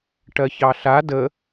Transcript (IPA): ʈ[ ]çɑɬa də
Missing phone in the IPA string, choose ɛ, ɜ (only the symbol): ɜ